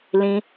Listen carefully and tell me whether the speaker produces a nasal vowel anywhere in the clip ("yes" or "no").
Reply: yes